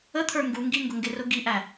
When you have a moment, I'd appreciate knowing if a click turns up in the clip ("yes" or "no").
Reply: no